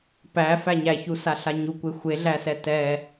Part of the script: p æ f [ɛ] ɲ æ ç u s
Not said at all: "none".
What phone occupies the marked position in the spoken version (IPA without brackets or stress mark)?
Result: æ